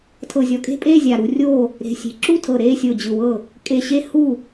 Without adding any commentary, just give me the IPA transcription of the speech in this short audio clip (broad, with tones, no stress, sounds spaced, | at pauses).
tʰ ɤ˧˩ zʲ ɔ˧˩ kʼ e̤˥˨ pʼ eː˥˨ zʲ a˧˩ ɾ u˥˨ rʲ oː˥˨ | ɾ e̤˧˩ sʲ e̤˧˩ ǁ u˥˨ tʰ ɤ˧˩ ɾ eː˥˨ sʲ o˧˩ d͡ʑ ɯ˧˩ w ɤ˥˨ | kʼ e˧˩ ɕ e˥˨ h u˥˨